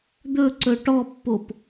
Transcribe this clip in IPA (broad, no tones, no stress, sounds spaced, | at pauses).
d̪ ɵ ǀ ɵ ʈ ɔ pː o p